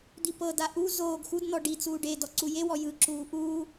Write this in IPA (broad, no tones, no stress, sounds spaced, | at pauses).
d̪ i p ɤ d a ʔ u z oː ɡ x u d n̪ ɔ ɖ i t͡s uː ɖ e d ɔ ǀ u j e w ɔ j ɯ ǁ uː ʔ uː